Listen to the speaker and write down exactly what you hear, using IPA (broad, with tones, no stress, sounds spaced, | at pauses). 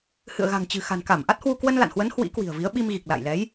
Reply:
h ɨ̰˧˨ ə̯ ɣ a̤˨˩ ŋ t͡ɕ ɨ̤˨˩ x a̤˨˩ n k a˧˩ m ʔ a˦˥ t̚ h w u˧ k w ə˧ n l a̰˧˨ n h w ə˨˦ n h w ḭ˧˥ k w i̤˨˩ ə̯ v i˨˦ ə̯ ɓ i˧ m ɣ i˨˩ k̚ l a̰˧˨ j l ɛ˨˦ j